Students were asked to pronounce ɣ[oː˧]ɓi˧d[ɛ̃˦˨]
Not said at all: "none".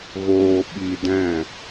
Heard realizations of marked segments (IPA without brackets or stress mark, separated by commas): oː˧, ɛ̃˦˨